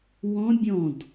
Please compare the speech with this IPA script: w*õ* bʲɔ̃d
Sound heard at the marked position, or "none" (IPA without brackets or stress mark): ɔ̃